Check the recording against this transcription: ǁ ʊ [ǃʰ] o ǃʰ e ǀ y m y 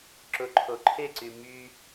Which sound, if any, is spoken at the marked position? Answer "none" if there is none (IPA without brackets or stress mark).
ǃʰ